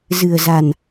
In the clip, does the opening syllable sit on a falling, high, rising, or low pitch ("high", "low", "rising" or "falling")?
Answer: low